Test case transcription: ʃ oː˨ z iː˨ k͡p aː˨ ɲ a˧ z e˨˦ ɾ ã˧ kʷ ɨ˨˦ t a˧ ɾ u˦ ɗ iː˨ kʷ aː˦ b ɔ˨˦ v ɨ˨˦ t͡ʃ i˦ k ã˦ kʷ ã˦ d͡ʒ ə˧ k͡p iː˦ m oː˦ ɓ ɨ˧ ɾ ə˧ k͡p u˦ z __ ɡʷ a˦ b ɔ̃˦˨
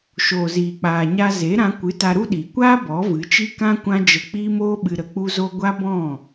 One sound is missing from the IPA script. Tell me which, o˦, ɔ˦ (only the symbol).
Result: o˦